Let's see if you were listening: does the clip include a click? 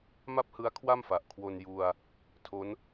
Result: no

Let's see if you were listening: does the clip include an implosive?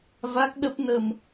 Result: yes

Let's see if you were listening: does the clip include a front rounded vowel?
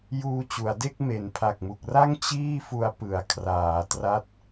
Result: no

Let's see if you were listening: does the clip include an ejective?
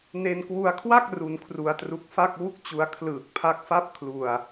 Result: no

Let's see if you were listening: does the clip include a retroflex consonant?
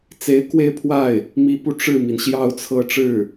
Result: yes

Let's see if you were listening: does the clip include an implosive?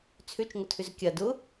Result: no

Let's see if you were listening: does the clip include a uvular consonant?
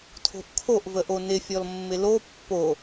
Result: no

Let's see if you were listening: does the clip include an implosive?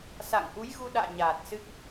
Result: yes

